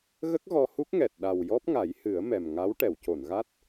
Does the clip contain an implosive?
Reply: yes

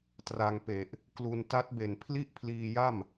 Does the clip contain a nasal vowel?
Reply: no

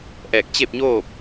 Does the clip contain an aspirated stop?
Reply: no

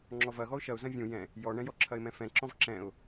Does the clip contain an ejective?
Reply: no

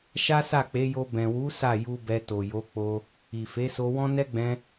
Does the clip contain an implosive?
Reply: no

